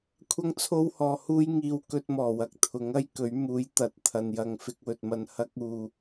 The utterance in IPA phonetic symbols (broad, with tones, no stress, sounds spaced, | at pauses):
kʷʰ ɐ˥ ŋ t͡sʰ o˥ w h ɔː˧ h uː˥ j ŋ iː˧ w k ɵ˧ t̚ m ɔː˨˩ w ɐ˨ k̚ t̪ʰ ʊ˨˥ ŋ ɐ˥ j k ɵ˨˥ ɥ m uː˨˥ j t̪ ɐ˨˥ t̚ t̪ʰ ɐ˨ n j ɐ˧ ŋ f ɪ˧ k̚ w ɵ˨ t̚ m ɐ˧ n h ɐ˥ k̚ uː˧